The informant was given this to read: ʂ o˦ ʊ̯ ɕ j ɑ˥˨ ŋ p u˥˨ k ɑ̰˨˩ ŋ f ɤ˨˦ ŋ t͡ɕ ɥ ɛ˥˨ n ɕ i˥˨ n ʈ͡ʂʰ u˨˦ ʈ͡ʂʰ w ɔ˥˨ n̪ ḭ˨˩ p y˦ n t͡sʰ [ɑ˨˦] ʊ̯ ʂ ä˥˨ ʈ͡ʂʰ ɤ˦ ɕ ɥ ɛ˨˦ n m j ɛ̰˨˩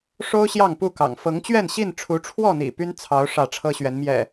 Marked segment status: correct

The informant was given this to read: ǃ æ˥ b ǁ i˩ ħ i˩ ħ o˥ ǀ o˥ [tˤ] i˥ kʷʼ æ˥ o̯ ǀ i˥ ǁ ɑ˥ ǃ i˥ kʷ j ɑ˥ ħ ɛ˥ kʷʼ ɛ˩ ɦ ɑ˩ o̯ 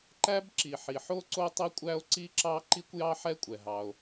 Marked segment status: correct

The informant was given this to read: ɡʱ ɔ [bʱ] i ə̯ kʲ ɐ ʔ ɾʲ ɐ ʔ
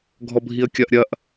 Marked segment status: correct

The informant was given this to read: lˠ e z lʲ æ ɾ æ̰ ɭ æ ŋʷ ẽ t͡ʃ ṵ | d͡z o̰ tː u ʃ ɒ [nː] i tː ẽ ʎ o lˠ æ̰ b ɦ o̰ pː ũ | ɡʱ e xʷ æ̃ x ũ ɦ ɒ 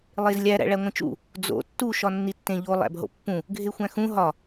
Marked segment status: correct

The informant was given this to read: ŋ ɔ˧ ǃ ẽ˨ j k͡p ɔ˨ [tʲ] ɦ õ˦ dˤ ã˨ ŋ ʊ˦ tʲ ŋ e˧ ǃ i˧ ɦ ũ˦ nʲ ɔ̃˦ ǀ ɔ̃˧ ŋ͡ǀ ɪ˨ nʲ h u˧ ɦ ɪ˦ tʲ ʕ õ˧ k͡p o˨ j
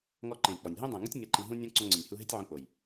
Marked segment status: incorrect: nʲ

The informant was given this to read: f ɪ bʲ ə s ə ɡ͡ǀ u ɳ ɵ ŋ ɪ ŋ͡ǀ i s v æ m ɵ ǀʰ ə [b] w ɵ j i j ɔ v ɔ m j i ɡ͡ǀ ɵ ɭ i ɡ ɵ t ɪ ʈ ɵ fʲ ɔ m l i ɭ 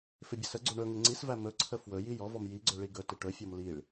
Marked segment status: incorrect: f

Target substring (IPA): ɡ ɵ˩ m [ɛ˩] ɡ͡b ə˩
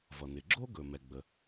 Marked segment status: correct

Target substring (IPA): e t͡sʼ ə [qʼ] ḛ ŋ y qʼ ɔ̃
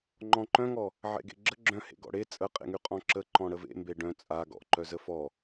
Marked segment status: correct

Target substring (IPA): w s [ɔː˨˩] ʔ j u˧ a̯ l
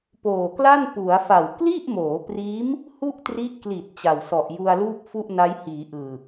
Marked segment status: incorrect: ɔ˨˩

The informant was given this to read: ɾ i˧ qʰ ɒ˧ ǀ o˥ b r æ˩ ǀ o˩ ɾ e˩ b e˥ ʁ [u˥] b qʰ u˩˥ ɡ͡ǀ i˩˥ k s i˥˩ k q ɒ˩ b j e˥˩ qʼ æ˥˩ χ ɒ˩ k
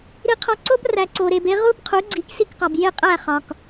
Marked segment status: correct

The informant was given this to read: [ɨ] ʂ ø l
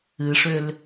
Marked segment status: correct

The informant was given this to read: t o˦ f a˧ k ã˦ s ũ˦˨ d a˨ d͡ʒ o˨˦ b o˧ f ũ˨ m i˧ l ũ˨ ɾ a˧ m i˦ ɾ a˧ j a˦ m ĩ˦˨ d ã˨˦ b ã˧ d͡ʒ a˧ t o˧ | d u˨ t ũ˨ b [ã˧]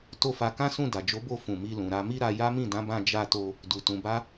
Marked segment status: incorrect: a˧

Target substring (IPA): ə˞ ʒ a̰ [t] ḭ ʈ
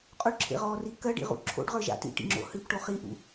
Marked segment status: correct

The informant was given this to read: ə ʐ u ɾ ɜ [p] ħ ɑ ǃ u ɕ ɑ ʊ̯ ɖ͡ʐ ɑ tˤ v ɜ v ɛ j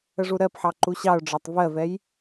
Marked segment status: correct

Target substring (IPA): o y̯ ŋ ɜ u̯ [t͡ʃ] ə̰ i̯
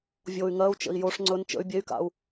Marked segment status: correct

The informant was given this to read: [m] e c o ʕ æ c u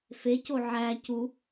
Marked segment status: incorrect: f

